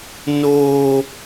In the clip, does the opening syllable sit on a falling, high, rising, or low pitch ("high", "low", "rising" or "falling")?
high